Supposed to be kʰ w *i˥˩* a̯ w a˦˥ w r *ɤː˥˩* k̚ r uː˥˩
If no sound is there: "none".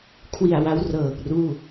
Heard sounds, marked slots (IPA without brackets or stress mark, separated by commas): i˨˩, ɤː˨˩